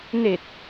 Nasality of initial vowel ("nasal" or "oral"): oral